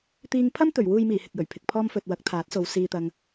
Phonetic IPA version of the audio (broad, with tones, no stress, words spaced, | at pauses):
t̪iː˧ŋpʰɐ˥m t̪ɵ˨˩ɥwuː˨jmiː˨˩ hɪ˨k̚jɵ˨˩ɥpʰɪ˨k̚pʰɔː˥m fɵ˨t̚wɐ˨˥k̚ t̪ʰaː˨˥t̚so˨˧w siː˧t̪ɐ˧ŋ